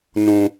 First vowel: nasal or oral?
nasal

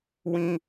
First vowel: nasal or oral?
nasal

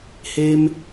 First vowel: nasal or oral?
oral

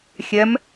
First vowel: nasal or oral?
oral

